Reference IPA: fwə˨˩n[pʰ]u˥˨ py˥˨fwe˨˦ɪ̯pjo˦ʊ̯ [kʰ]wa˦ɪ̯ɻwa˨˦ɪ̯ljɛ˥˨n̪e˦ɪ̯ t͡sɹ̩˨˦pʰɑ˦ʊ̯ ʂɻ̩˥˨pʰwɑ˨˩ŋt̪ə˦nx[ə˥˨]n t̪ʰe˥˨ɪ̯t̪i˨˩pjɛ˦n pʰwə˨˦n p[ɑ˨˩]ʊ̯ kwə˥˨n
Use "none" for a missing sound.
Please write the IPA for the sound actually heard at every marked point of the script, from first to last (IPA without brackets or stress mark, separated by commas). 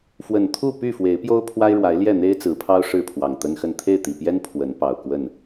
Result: t̪ʰ, pʰ, ə˥˨, ɑ˨˩